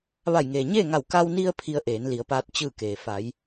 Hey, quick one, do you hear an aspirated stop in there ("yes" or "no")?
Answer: yes